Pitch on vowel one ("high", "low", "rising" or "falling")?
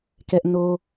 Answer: high